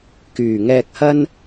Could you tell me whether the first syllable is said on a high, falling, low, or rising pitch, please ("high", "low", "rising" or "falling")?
low